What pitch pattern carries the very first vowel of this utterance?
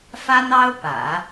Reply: high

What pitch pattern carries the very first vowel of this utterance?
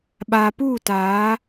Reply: low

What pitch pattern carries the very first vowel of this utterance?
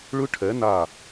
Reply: high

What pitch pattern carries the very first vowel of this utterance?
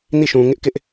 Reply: falling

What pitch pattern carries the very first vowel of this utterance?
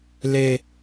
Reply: high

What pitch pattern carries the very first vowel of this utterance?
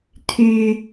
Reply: high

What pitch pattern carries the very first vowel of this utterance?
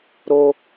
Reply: high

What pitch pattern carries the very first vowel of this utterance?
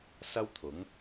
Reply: high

